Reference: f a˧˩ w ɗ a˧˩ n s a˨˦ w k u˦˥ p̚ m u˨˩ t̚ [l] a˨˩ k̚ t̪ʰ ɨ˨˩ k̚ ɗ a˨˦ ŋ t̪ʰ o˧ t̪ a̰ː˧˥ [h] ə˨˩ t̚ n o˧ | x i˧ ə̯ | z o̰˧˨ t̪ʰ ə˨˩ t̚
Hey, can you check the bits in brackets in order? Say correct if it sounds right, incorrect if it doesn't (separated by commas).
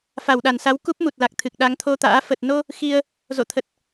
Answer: correct, incorrect